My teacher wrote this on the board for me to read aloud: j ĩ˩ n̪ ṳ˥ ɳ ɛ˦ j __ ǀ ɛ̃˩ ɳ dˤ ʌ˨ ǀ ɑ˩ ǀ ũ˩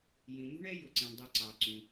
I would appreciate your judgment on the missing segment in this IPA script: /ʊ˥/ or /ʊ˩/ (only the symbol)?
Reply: ʊ˩